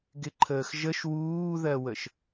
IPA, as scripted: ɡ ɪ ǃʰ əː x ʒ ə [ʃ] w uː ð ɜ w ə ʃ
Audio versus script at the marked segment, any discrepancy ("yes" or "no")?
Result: no